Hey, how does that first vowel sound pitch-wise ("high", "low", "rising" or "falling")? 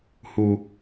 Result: high